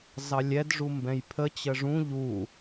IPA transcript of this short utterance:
z ɑ lʲ ɛ d ʐ u m b ɛ̃ j pʰ ə t͡ɕ ə ʐ ũ ʎ u

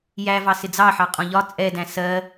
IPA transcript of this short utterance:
j æ v ɑ s ɪ d͡z ɑ ħ ɑ qʼ ɔ̃ ʎ ɒ t͡sʼ ɛ d æ̃ s ɜ

